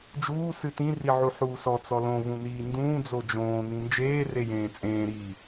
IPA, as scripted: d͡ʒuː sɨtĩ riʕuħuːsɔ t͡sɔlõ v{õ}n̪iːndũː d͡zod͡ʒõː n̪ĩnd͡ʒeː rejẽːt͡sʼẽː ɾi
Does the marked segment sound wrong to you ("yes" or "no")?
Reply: yes